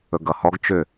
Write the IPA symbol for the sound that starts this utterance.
ɵ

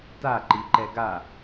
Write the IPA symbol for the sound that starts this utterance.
t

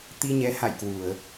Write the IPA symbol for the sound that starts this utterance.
t̪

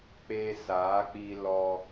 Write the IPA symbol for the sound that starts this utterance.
k͡p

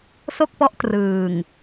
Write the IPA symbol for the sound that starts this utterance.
s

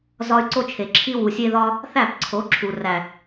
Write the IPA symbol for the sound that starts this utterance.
z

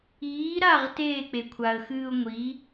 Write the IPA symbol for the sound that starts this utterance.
iː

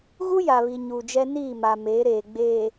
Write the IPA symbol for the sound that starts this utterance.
ɣ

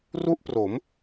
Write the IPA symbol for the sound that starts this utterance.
r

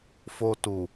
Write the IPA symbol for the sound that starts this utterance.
f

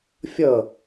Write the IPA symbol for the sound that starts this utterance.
fʲ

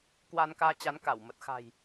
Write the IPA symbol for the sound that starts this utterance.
k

